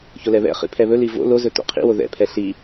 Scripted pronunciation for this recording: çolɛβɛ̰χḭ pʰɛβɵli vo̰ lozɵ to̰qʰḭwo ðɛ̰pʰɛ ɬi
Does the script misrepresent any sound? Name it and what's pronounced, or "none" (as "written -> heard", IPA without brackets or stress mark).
none